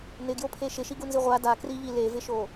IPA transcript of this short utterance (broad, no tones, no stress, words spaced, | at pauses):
nɪɡjopʰe ʃɪʃiɡunzi ʁʷa dakriʎi levɪʃo